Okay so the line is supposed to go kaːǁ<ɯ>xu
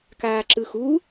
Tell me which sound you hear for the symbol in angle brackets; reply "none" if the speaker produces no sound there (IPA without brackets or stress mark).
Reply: ɯ